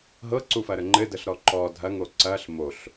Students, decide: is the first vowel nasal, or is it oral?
oral